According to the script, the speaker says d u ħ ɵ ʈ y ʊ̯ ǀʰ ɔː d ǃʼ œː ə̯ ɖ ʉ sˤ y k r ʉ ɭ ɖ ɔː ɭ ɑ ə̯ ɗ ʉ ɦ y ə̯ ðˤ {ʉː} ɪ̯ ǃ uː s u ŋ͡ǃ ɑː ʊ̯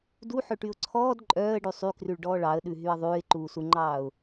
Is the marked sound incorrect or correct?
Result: correct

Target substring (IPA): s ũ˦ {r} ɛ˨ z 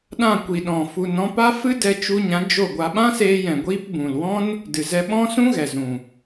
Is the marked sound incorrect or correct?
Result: incorrect: ɣ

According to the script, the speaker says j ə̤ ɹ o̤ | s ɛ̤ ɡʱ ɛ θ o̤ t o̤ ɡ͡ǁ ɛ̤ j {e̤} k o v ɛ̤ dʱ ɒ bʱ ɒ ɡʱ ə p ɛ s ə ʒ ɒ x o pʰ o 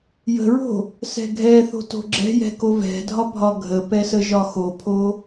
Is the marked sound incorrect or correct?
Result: incorrect: ɛ̤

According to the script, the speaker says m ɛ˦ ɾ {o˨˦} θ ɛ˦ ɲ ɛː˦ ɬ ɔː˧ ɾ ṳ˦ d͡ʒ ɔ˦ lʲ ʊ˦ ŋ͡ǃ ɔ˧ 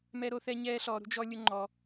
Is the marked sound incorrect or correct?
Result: correct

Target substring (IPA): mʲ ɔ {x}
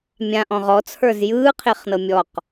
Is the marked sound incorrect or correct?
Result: incorrect: q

